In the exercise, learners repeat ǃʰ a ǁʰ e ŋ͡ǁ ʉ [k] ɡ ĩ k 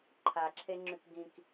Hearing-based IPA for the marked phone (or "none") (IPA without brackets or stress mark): k